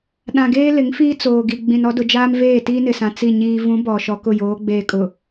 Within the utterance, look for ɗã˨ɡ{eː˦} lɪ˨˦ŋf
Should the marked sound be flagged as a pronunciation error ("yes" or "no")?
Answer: no